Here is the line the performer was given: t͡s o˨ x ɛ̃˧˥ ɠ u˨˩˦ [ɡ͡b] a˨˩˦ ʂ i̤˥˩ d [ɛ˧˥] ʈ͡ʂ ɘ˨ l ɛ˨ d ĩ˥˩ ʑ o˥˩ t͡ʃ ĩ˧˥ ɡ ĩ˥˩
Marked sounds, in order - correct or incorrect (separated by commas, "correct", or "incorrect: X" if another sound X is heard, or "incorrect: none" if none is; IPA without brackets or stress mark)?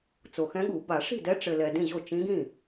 incorrect: b, correct